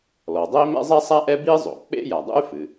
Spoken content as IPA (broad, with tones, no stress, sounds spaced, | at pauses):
l ɔ˩ dˤ ɛ˥ i̯ m ɛ̰˥ zˤ ɛ˥ sˤ a˥ ʔ ɛ˥ b i˥ zˤ o̰˩ k͡p ḛ˥ j a˩ dˤ ṵ˥ y̯ f ɨ˩